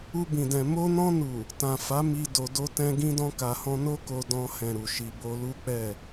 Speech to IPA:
u˧ b ĩ˨ d ɛ̃˨ m o˧ n ɔ̃˧ n u˨ | t ã˨ f a˨˦ m i˧ d o˧ d o˦ t ɛ̃˧ ɡ ĩ˧ d ɔ̃˧ k a˨ h ɔ̃˧ n o˦ k o˧ d ɔ̃˧ h ɛ̃˨ ɾ u˨ ʃ i˧ b o˧ l u˦ k͡p ɛ˦˨

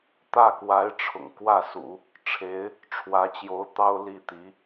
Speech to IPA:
t̪ ä˥˩ k w a˧˥ ɪ̯ ʈ͡ʂʰ ʊ̰˨˩ ŋ k w ä˥˩ s ṵ˨˩˦ | ʈ͡ʂʰ e˧˥ ɪ̯ | ʈ͡ʂʰ w ä˧˥ t͡ɕ j o˧˥ ʊ̯ t̪ ɑ˥ ʊ̯ l i˥˩ t̪ i˧˥

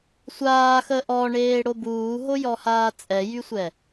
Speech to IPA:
sʷ aː x ə ʔ ɔ ɳ eː ɽ o b uː ɦ o j ɔ h aː t͡sʼ ɛ j y sʷ ɛ

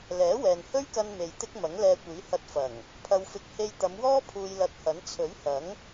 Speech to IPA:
l ɛː˨˥ w ɛː˨ n h ɵ˥ ɥ k ɐ˧ n m e˨ j t̪ ɪ˥ k̚ m ɐ˨˥ ŋ l ɛː˧ kʷ iː˨˥ h ɐ˧ t̚ f ɐ˨˩ ŋ | pʰ ɐ˧ w f ɪ˧ k̚ h e˧ j t̪ ɐ˨˧ m w ɔː˥ pʰ uː˧ j l ɐ˧ t̚ h ɐ˨˥ n t͡sʰ ɵ˨˥ ɥ h ɐ˨˥ ŋ

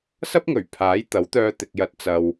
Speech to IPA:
s ɐ˥ p̚ ŋ ɵ˨˩ ɥ pʰ aː˨˥ j t̪ ɐ˨˥ w t̪ œː˧ t̪ ɪ˨ k̚ j ɐ˨ t̚ t͡s ɐ˨ w

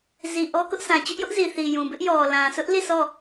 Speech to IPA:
z i˨ ʔ ɔ˦ k ʊ˦ ʔ s ã˨ t͡ɕ ʊ˦ ʔ j ʊ˦ ʔ z i˨ θ i˨ j ũ˨ b ɪ˦ ʔ j ɔ˨ l ã˨ sʰ ʊ˦ ʔ l i˦˨ sʰ ɔ˦˨

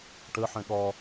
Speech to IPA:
ʈ ə ħ ɛ̃ ɠ ɒ

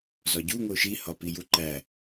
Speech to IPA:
z ɒ ɟ u ŋ o ʃ i h ɒ p i j u ǃ æ

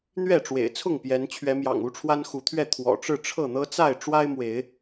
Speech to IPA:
n̪ ɥ ɛ˥˨ ʈ͡ʂ w ḛ˨˩ ɪ̯ t͡sʰ ʊ˥˨ ŋ p j ɛ˨˦ n t͡ɕʰ ɥ ɛ˨˦ m j ɑ̰˨˩ ŋ u˦ ʈ͡ʂʰ w a˦ n x u˨˦ t̪ʰ ɥ ɛ˥˨ t̪ʰ w ɔ̰˨˩ ʈ͡ʂ ɻ̩˥˨ ʈ͡ʂʰ ɤ˥˨ n̪ ɤ˦ t͡s a˥˨ ɪ̯ ʈ͡ʂ w a˦ ɪ̯ m w e˨˦ ɪ̯

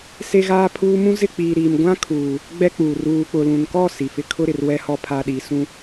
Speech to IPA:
s e˦ ɣ aː˦ pʰ uː˦ m ũ˦ z ɪ˦˨ k͡p iː˨ ɾ iː˨ m ɡʷ ã˦ kʰ uː˨ | ɡ͡b ɛ˦ k͡p uː˨ r uː˨ k͡p ʊ˨ l ũ˨ n k ɔ˦˨ s i˨ f ɪ˦ kʰ ʊ˦ ɾ ɪ˨ r w ɛ˦ h ɔ˦ pʰ a˦ ɗ i˨˦ s ũ˦

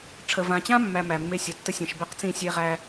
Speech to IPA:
ʈ͡ʂʰ ə˨ v ã˨ t͡ɕ ã˦ mː æ˨ m æ˨ mː e˦ sʲ ʌ˨ tː ə˦ sʲ ɛ̃˨ ʃ b ɛ˦ q t͡s ĩ˦˨ sʲ e˦ ʁ æ˦

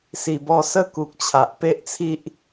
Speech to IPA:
s i˨˩ b ɔ˧ s ə˦ k u˨ k̚ t͡ɕʰ a˨ ʔ p e˦ ʔ t͡sʰ i˦ ʔ

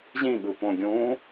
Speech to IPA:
ʑ ĩ ɠ ɯ p õ ɡʲ ũː

